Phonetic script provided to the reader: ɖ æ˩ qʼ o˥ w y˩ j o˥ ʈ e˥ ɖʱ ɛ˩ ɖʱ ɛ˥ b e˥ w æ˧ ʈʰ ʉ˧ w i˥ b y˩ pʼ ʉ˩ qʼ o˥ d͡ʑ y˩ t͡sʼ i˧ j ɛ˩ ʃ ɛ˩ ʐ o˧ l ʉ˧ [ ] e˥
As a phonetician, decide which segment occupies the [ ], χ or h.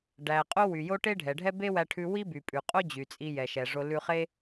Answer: χ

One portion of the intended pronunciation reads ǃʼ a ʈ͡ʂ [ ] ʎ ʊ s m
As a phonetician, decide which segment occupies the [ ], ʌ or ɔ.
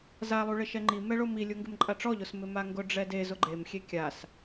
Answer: ɔ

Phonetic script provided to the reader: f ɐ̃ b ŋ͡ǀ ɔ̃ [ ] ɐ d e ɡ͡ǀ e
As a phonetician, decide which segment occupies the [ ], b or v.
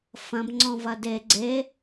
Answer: v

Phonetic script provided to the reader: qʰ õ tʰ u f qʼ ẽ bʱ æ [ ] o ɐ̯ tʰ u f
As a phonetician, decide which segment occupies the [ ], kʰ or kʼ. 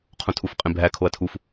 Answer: kʰ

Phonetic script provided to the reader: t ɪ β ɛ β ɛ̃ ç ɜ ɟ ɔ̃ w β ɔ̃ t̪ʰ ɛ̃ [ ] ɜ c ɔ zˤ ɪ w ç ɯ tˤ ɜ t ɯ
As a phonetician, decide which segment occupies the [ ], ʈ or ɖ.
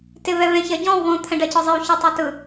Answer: ɖ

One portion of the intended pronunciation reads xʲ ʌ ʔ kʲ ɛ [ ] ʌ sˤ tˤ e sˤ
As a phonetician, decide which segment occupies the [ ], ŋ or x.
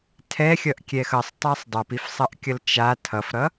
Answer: x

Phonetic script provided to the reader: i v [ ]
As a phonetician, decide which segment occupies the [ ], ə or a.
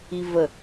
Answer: ə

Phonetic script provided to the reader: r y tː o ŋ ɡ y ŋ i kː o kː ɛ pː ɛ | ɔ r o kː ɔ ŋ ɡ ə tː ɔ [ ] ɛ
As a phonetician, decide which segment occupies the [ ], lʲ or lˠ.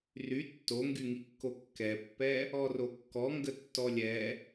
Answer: lʲ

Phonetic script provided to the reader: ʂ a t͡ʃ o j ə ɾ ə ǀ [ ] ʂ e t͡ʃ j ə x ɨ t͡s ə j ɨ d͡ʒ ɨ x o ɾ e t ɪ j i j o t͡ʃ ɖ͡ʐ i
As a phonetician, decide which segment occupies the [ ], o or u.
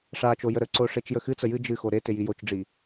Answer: o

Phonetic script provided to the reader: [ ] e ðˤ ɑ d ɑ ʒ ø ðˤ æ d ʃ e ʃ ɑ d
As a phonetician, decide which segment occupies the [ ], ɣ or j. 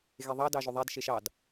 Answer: ɣ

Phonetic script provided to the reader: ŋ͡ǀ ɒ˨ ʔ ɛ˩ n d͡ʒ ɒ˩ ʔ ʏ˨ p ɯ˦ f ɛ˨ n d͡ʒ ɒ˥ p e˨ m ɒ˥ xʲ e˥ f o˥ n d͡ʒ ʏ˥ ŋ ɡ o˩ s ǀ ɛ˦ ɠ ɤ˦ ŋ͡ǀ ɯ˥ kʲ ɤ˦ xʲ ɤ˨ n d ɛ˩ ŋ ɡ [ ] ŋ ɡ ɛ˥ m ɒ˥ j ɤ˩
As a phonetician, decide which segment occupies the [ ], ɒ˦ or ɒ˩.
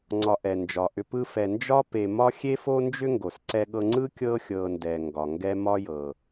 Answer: ɒ˩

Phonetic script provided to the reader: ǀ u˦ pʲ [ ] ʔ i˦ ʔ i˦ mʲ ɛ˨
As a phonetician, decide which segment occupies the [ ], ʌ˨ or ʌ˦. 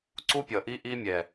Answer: ʌ˨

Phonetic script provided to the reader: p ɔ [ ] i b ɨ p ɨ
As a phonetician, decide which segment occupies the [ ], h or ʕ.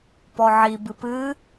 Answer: ʕ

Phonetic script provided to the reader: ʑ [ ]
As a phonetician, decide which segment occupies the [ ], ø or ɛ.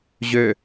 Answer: ø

